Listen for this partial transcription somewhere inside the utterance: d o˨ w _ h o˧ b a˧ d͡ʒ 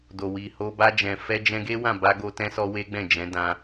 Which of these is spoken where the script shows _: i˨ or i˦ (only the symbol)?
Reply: i˨